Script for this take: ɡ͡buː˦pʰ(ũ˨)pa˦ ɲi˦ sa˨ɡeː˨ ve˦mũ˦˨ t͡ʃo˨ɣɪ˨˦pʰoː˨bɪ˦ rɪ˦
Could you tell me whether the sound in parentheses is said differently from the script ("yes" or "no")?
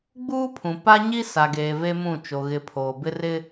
no